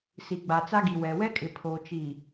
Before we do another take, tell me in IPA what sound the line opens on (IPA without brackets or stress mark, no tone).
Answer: s